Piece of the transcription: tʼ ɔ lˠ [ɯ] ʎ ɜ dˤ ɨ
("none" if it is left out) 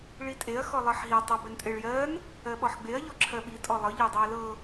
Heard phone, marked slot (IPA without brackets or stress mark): ɤ